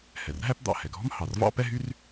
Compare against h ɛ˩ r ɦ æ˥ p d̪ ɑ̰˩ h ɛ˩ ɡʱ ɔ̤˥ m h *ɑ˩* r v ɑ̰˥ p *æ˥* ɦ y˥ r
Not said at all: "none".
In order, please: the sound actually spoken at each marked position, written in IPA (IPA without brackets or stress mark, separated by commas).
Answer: ɑ˩, ɛ˥